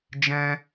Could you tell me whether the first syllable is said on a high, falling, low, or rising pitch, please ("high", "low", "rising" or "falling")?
high